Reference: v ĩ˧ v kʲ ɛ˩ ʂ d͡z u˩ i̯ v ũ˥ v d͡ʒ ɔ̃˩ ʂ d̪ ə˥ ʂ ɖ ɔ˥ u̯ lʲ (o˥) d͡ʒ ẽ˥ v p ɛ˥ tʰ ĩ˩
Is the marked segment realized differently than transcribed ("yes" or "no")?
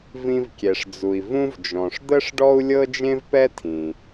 yes